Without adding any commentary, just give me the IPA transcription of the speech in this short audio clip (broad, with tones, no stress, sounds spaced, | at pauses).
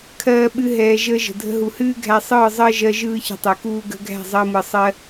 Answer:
kʰ ɜː˧ ɓ ɨ˧ ɦ ɛː˧ ʒ əː˦ ʒ ə̤˨ dʱ ə̤˧ ɦ u˨ h ɨː˦ ɡʱ æ˧ sˤ ɯː˦˨ zˤ əː˦ ʒ ɜ˧ ʒ ɯː˦ ç ə̤˧ tˤ ɨ˨ k uː˦ ɡ ə̤˧ ɡʱ æ̤˦˨ zˤ əː˧ m ɯ˨ sˤ ɜ˦